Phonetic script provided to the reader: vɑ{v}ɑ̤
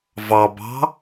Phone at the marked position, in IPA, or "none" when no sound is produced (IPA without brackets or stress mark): b